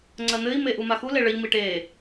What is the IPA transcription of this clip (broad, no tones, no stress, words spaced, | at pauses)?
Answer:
ŋ͡ǀɜn̪ɘi̯ meʔumaxu leɭɘʎ miʈe